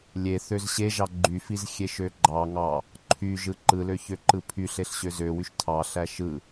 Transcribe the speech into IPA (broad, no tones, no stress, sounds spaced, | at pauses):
lʲ e θ ø z ɕ e ʒ ɑ ɡ͡ǃ y f i z xʲ e ʃ ø ɡ͡ǃ ɑ ŋ ɑ | ǃʰ y ʒ ɯ ǃ ɯ l ø ç ø ǃ ɯ pʰ y ɬ e ɬ ɕ ø z ø w y ʃ tʰ ɑ ɬ æ ʃ ɯ